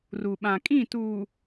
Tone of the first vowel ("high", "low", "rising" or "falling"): low